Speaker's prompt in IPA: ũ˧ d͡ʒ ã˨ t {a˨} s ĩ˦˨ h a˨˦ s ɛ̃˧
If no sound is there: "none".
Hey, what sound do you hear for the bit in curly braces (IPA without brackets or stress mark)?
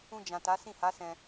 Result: a˨˦